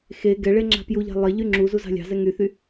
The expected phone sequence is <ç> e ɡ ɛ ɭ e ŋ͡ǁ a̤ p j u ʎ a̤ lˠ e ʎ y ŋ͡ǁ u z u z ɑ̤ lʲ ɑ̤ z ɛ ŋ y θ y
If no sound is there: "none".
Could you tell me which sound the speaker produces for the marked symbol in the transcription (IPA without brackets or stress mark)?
x